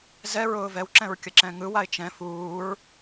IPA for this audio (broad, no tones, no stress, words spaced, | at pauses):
zɛɹʊː vɛwǁɛ̃ɹ kʲəǁɛ̃ŋɯwaɪ̯ t͡ʃɛ̃ fuːɹ